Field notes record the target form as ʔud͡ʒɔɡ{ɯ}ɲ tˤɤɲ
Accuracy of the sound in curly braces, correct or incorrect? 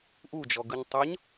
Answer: correct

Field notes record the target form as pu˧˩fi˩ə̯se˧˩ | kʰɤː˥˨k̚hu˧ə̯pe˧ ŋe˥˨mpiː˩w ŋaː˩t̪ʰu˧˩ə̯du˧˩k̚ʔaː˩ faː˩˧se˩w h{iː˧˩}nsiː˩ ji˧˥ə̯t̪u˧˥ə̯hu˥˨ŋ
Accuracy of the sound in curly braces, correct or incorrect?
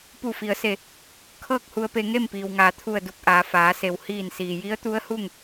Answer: correct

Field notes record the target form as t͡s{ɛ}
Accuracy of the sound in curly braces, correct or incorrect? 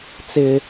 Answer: incorrect: ɪ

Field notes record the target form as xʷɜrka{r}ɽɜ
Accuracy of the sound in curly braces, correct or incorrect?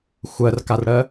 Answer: correct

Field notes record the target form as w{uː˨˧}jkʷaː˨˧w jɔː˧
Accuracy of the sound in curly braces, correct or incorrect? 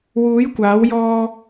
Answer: correct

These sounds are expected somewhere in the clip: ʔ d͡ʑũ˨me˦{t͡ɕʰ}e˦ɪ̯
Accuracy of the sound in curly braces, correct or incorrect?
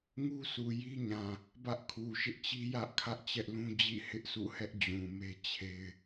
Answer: correct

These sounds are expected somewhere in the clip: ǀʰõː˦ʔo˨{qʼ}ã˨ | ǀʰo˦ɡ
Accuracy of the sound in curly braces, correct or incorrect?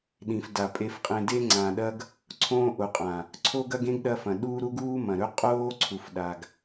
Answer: correct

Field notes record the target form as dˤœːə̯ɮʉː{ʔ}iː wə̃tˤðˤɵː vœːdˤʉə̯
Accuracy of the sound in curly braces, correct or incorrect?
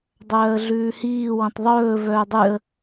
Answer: incorrect: h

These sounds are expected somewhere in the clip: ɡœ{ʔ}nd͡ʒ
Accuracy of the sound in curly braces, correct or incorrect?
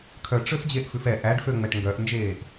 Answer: correct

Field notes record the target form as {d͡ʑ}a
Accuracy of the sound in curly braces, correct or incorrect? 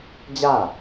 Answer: correct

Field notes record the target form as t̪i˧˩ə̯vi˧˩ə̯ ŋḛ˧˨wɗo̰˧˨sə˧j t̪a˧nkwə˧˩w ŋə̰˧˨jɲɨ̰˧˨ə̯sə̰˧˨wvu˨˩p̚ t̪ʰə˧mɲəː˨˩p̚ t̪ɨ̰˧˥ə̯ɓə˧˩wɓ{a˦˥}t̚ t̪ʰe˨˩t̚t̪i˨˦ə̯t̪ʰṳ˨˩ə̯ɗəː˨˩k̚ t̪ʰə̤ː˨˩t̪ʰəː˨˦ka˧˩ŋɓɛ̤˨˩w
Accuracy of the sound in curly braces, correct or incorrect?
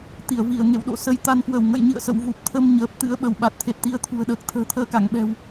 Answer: incorrect: a˨˩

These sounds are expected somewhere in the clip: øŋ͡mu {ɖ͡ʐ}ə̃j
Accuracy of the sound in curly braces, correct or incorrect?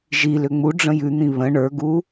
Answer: correct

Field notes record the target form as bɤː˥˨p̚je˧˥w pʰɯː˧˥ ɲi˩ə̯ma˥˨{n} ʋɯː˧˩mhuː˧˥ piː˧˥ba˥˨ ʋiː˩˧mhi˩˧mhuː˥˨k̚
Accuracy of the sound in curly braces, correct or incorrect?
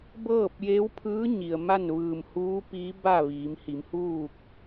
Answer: correct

